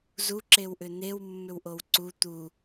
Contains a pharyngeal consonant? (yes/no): no